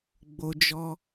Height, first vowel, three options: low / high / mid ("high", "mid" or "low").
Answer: mid